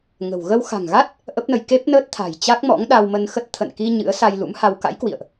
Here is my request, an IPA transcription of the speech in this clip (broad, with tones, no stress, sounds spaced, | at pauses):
ŋ ə̤˨˩ w ɣ ə˧ w x a̤˨˩ ŋ ɣ a˦˥ t̚ | ʔ ə˦˥ p̚ n ə˧ j k e˦˥ p̚ n əː˦˥ t̚ t̪ʰ a̤˨˩ j t͡ɕ a˦˥ k̚ m ɔ̰˧˥ ŋ ɗ a˧ w m ə˧ n x ə˦˥ t̚ t̪ʰ ə̰˧˨ n k i˧ ɲ ɨ̰˧˥ ə̯ s a˧ j l ṵ˧˥ m h a˧ w k a̰˧˥ j k w ḭ˧˨ ə̯ ʔ